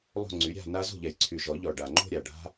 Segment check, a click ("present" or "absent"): present